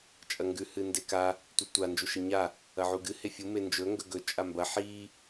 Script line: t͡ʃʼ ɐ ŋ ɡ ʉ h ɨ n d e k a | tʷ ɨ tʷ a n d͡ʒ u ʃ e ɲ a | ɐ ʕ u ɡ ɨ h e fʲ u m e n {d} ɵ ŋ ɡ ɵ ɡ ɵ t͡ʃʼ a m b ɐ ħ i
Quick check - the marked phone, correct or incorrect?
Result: incorrect